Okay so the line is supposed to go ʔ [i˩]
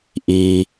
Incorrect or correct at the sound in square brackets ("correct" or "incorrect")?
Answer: correct